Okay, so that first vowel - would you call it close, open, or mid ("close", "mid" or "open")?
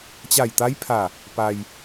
open